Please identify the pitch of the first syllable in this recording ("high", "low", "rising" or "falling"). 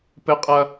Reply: high